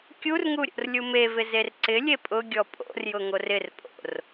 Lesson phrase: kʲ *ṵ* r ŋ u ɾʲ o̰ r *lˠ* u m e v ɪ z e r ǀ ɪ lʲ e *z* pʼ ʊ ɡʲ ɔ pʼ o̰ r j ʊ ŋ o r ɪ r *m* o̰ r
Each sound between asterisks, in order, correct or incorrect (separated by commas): incorrect, incorrect, incorrect, incorrect